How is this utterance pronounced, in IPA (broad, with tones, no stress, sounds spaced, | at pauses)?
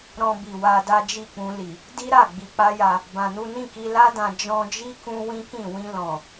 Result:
ɾ ɔ̃˧ b i˨ w a˧ d a˦ d͡ʒ i˦˨ k͡p ũ˧ l i˨ | d i˦ ɾ a˦˨ ɡ͡b i˧ k͡p a˦ j a˧ | b ã˧ n u˦ n ĩ˦˨ k i˧ l a˦ d ã˧ d͡ʒ ɔ̃˧ d͡ʒ i˦ k ũ˦ w ĩ˦ k ĩ˦˨ w ĩ˧ l ɔ̃˨